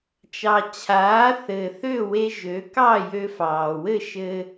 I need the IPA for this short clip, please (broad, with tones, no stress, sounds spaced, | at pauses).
t͡ʃ ɑ˩ t͡ɕʰ aː˩˥ θ ɘː˩ θ ø˥˩ w e˧ ʒ ø˩˥ k ɑ˥˩ j ø˧ f ɑː˩ w ɘ˥˩ ʃ ɘ˧